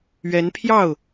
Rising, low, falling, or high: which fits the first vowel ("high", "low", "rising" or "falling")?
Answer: rising